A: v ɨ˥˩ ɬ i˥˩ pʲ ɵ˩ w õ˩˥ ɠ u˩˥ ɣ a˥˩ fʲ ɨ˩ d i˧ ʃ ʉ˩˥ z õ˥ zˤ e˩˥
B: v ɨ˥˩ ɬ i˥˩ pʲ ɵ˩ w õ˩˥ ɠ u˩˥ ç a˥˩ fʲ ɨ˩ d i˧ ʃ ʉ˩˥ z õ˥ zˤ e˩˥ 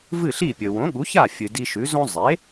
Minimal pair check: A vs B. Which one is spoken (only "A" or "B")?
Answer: B